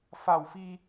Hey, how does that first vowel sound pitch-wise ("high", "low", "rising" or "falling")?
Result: low